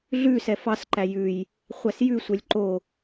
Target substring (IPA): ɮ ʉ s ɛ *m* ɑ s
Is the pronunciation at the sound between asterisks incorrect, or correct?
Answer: incorrect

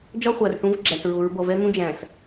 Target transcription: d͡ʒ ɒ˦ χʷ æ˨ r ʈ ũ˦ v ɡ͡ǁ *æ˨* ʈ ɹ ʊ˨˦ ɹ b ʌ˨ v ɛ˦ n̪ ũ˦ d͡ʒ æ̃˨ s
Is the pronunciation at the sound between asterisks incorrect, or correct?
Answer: correct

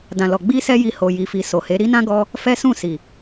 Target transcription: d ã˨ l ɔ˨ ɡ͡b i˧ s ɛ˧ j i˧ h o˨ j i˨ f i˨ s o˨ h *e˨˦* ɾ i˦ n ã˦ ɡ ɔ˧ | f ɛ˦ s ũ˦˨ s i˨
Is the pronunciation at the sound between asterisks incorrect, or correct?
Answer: correct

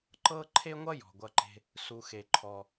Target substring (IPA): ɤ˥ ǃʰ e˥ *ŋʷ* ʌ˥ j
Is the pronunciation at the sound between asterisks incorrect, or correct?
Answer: correct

